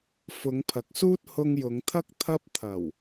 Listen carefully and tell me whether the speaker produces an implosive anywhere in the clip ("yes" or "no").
no